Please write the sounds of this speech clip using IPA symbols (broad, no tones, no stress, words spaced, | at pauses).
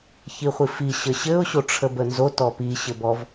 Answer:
çiχʷifi ɕəɕɘʊ̯ ɕoʈ͡ʂʰəbənzo tɔpi ɕɘbɔv